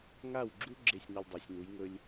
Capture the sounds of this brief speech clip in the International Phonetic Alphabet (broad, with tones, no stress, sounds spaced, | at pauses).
ŋ a˥˩ w ɡ͡ǁ u˥ ɡ͡ǁ e˥˩ sʲ n ɐ˧ lʲ dˤ a˩˥ sʲ n u˩˥ j ŋ ɵ˥ lʲ